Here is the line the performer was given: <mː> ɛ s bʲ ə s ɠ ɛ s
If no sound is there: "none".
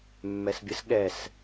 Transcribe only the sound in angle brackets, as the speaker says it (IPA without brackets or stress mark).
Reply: mː